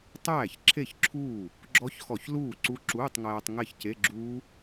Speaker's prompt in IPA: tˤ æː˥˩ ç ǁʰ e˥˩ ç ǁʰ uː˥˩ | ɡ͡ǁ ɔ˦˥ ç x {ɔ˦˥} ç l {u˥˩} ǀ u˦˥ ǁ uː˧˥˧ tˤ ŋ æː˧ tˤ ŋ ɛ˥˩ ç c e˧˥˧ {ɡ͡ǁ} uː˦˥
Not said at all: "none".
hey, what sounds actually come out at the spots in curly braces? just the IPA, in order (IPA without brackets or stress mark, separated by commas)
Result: ɔ˧˩˧, uː˥˩, ɡ͡ǁ